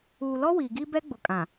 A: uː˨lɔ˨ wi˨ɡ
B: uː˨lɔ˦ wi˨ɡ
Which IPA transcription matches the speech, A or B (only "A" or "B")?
B